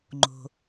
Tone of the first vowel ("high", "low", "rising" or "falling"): low